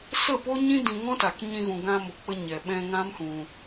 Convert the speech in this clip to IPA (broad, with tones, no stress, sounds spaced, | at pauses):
s ə˦˨ p o˦ ɲ ĩ˦ d ĩ˧ ŋ ɔ̃˦ t a˨ k ɲ ĩ˧ ɣ ũ˨ ɡ ã˧ m o˨ k͡p ə˧ ɲ ɛ˨ ɓ ɛ̃˧ ŋ ã˦ m h ũ˧